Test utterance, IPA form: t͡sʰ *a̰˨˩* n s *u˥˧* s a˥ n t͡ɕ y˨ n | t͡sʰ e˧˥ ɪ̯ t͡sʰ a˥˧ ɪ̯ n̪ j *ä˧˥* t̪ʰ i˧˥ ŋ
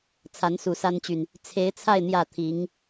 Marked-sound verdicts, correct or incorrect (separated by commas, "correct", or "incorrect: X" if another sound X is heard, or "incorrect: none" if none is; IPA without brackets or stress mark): incorrect: a˧˥, incorrect: u˨˩, incorrect: ä˥˩